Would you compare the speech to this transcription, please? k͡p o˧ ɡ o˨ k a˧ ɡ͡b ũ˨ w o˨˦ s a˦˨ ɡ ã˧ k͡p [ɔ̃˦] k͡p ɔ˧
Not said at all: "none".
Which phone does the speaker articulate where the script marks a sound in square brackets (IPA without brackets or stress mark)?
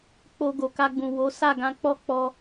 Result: ɔ˦